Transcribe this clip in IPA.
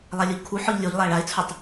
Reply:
lˠalʲoʎkʰu ħɔʎlʲoʎ lˠæɭaɪ̯t͡sʰutˤ

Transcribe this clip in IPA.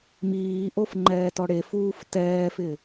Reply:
miːʔof ŋ͡ǃɛːtɔɽefuːf tɛːfɪ

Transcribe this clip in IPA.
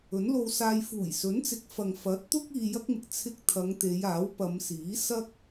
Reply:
ɵ˨˥nlo˧wsaː˧j fuː˨˩jsɵ˨˥nt͡sɪ˨˥k̚ fɐ˨ŋfɐ˨˥t̚t̪ʊ˥k̚ iː˧jɐ˥k̚mɪ˨k̚ t͡sʰɪ˧k̚ t̪ʰɐ˨˧ŋ t̪e˨˧jaː˨˥wpɐ˨˧m siː˨˥ sɐ˥k̚

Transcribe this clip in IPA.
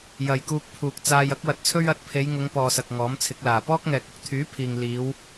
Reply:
jɐ˨jkuː˧k̚pʰuː˨k̚t͡saː˧j ɐ˥k̚wɐ˨˥t̚t͡sʰɵ˥ɥ ɐ˨˥t̚pʰe˨˧jŋʊ˨˧ŋ pɔː˨sɐ˨k̚ ŋɔː˨˥mt͡sʰɪ˨˥k̚laː˨ pɔː˥k̚ŋɛː˨k̚ʊ˨˥k̚ t̪ʰyː˨˥pʰiː˨ŋ liː˨˧w

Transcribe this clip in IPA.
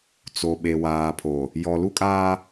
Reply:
t͡so˨ɓe˨ waː˨ pʰo˨ | jɔ˨lu˦kʼaː˦

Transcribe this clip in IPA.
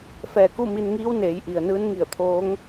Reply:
fɛː˧˩ku˥˨mi˧nŋiː˧˥w neː˩˧jʔi˩ə̯ nɯː˧˥nŋi˧˩ə̯t̪ʰoː˧˥ŋ

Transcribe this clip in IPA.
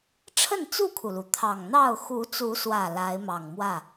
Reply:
ʈ͡ʂʰə˥˨nt͡su˥˨kʰu˩lu˩ t̪ʰɑ˨˩ŋn̪ɑ˥˨ʊ̯ xu˨˦t͡su˨˦swä˨˩ la˨˦ɪ̯mɑ˨˩ŋ mwä˥˨

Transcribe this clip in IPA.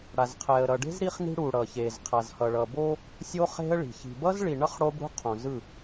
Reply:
ɽa˨zqʰɛ˨ə̯ɾʌ˨ɖe̤˦z ɾi˦χni̤˦ɽu˨ ɽʌ˨çe˨z qʰa˨zhʌ˨ɭʌ˨bo˦ | sʲo˦ χe̤˦ə̯ɭi̤˨ çi̤˨bʌ˦zɭi˨ɳʌ˦χ ɽo˦bɽṳ˦qʰõ˨zɯ˦˨

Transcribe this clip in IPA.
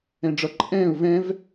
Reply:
ɛ̃ɖ͡ʐʌ ǃʼɛ̃ːʊ̯ vɛ̃v

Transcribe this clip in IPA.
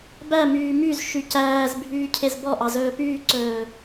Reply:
bæmyː myzʃy cæːz bʱyːcʰezbɔʔɑ zɵːpyːǀɵː

